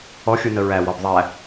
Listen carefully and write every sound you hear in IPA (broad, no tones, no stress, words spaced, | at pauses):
ɔxʲunə ɹæwɔb ðˤæ